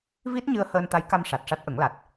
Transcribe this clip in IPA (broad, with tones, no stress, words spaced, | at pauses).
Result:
vi˦˥t̚ɲɨ˧ə̯ həː˧nt̪a˧˥jka˧m ʂa˨˩t̚ʂa˦˥t̚ʔə˨˩˦ŋla˨˩t̚